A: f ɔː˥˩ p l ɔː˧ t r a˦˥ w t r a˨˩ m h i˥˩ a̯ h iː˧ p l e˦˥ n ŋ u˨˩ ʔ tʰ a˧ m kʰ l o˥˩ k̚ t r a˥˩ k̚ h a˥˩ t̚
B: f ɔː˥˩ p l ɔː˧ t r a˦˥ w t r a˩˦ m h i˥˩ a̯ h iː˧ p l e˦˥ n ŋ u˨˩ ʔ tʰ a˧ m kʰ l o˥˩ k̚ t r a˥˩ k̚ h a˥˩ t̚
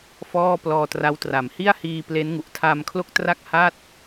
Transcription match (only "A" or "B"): B